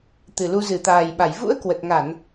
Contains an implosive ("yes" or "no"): yes